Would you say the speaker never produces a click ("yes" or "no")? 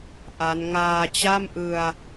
yes